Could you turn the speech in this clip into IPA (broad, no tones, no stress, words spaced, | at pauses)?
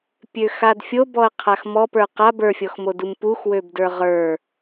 pʲøxadfʲo bɔɐ̯qʰaxmɔ pə˞qa bə˞fʲɔxmo dumpux wøbdə˞ʁə˞